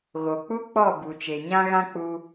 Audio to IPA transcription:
ɣ o˨ k͡p u˦ k͡p ɔ˦˨ b u˨ t͡ʃ e˨ ɲ ã˦ ɣ ã˦ k͡p u˧

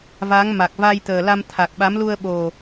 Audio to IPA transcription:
v a˨˦ ŋ m a˨˩ k̚ v a˧ j t̪ əː˨˩ l a˧ m t̪ʰ a˨˩ k̚ ɓ a˨˦ m l u˧ ə̯ ɓ o˨˩

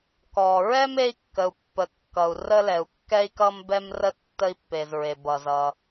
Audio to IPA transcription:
k ɔ˩ ɹ ɛ˥ m e˥ i̯ kː ə˩ u̯ pː ə˩ kː ʌ˩ u̯ r ə˥ l ɛ˩ u̯ kː ɛ˥ i̯ k ʌ˥ m b ɛ˥ m r ə˥ tː ə˥ i̯ pː e˩ z ɹ e˩ b ʌ˩ z ʌ˩

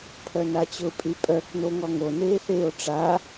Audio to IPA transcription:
pʰ œ n a t͡ɕ ʊ pʼ y pʼ œ k n o ŋ ɔ ŋ o n eː θ eː o̯ ʈ͡ʂ a

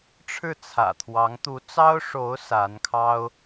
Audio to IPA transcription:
ʈ͡ʂʰ ɻ̩˥˩ t͡sʰ ä̰˨˩ t̪ʰ w ɑ˧˥ ŋ t̪ u˧˥ t͡s ɑ˥ ʊ̯ ʂ o˧˥ ʊ̯ s a˧˥ n kʰ ɑ˥ ʊ̯

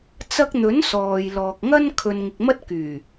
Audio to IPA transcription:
t͡s ɐ˧ k̚ n̪ ɵ˨˥ n s ɔː˨ j l ɔː˨ k̚ ŋ ɐ˥ n kʰ ɵ˨ n ŋ ɪ˨ k̚ m ɐ˥ t̚ k yː˨˩

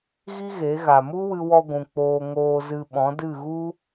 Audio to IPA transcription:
ɣ i˦ ɣ e˨˦ ɣ a˨ m u˦ w ɨ˧ w ɔ˧ ɡʷ ũ˨ k͡p oː˧ ŋ oː˧ z ɨ˧ ɓ ɔ̃˨˦ d ɨ˦˨ ɣ u˦

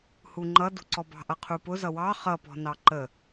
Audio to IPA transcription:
h u ŋ͡ǃ ʌ d ṳ ǀ ɔ b ɑ̤ ʔ ʌ qʰ u p ʊ z ʌ w ɑ χ ʌ p ɔ̤ n ɑ ǃ ə

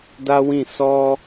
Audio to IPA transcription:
d a˦ w ĩ˦˨ s ɔ˧

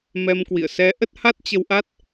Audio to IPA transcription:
m ɛ˧ m k w ḭ˧˨ ə̯ s ɛ˨˦ ʔ ə˦˥ t̚ h a˦˥ t̚ t͡ɕ ə˧ w ʔ a˦˥ t̚

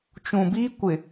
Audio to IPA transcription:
t͡ʃ ũ˨ b iː˦ kʷ ɪ˨

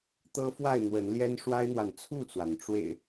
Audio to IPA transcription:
t̪ ɤ˦ f w a˥˨ ɪ̯ n̪ w ə˨˦ n l j ɛ˦ n ʂ w a˦ ɪ̯ n̪ w a˨ n t͡sʰ u˥˨ t͡s w a˩ n ʈ͡ʂ w ḛ˨˩ ɪ̯

